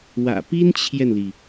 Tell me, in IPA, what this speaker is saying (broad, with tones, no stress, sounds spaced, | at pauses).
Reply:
w ä̰˨˩ p i˥ n t͡ɕʰ j ɛ˨ n l i˩